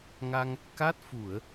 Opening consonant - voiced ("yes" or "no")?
yes